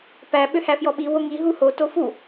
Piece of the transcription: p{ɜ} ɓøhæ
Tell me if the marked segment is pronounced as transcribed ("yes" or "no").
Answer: no